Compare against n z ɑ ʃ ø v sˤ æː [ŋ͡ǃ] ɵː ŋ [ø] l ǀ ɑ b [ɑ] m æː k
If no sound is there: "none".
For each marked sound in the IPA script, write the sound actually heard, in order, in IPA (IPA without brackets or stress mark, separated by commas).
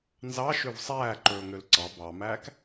ǃ, ø, ɑ